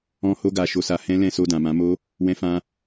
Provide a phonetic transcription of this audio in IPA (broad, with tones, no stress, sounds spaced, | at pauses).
ɔ̃˦ h o˦ ɡ a˧ ʃ o˧ s a˧ h ɛ̃˦ l ɛ̃˦˨ s o˧ d ã˨ m ã˨˦ m o˦ | w ɛ̃˧ f ã˧